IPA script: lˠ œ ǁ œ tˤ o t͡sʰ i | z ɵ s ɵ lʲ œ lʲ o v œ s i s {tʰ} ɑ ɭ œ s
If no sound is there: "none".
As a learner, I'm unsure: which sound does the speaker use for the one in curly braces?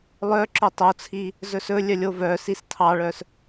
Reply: tʰ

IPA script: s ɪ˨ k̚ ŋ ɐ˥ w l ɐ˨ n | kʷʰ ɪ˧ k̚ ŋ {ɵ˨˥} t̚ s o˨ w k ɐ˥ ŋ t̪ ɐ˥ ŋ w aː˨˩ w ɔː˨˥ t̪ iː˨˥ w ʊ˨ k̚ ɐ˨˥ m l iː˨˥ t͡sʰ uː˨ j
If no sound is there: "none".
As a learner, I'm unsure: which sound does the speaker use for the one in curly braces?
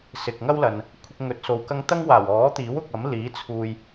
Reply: ɵ˨˥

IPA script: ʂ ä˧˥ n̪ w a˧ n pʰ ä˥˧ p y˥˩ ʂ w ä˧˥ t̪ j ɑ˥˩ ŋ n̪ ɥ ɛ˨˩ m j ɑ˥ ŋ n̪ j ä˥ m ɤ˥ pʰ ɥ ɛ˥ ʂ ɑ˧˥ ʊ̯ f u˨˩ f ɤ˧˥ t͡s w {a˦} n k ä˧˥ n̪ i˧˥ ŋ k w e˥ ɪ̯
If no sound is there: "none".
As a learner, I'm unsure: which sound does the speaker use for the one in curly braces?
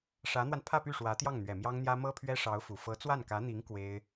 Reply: a˥˩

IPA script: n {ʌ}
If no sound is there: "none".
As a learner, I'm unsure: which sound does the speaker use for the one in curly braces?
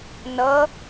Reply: ʌ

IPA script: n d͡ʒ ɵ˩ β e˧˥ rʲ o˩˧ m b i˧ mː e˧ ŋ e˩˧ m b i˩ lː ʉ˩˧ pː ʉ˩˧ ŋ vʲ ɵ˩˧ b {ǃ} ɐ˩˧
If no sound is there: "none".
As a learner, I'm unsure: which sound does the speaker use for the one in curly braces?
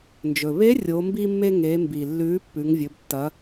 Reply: tː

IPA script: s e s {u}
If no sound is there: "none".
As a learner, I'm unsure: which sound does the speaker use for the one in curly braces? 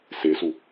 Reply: u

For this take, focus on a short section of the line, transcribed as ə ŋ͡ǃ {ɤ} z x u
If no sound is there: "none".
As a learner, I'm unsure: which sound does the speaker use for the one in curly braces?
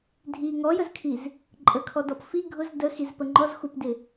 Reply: ɔ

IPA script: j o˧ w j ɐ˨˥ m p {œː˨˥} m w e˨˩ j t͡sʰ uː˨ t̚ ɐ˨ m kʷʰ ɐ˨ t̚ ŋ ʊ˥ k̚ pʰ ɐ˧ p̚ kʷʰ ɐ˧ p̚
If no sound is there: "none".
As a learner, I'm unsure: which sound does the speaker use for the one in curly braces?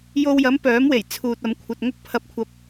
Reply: œː˨˥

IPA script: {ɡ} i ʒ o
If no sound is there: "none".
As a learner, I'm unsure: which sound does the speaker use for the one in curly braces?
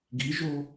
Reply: ɡ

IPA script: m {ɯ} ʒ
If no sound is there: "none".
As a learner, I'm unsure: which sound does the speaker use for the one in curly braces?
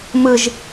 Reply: ɯ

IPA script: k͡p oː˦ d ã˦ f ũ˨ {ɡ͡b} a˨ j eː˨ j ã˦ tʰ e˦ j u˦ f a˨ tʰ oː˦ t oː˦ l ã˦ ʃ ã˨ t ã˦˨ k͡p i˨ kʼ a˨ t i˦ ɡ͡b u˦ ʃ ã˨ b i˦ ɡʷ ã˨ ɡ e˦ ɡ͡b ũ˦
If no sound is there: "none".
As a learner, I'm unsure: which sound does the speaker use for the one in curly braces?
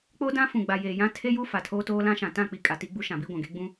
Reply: ɡ͡b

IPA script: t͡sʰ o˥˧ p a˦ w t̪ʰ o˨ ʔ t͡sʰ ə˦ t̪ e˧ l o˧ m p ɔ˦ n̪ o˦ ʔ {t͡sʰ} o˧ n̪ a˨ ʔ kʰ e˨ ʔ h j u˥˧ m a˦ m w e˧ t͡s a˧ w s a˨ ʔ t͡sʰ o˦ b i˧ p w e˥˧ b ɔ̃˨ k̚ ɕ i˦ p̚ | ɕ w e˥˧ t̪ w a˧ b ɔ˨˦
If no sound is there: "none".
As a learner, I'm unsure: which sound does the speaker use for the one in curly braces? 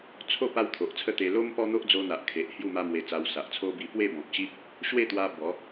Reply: d͡z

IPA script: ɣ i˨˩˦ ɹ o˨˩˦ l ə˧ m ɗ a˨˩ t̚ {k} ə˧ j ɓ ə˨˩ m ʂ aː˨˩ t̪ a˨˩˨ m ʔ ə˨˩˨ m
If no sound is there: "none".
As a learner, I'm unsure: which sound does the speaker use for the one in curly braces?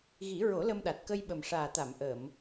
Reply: k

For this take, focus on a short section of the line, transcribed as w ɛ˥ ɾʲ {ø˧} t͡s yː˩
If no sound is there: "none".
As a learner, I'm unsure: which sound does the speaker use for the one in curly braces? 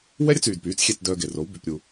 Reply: œ˧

